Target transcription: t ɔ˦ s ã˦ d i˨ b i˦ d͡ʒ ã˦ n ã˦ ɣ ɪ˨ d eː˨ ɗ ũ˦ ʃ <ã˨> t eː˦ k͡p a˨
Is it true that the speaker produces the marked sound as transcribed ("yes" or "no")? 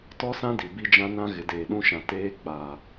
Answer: yes